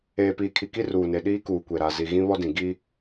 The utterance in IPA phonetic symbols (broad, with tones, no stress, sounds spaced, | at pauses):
eː˨ p iː˨ kʰ i˨ k i˦ r uː˨ n e˨ ɗ iː˦ k uː˨ kʷ e˨ ɾ a˨ z i˨ ɣ ĩ˦ β ɔ˦ d ĩ˨ ɡ i˦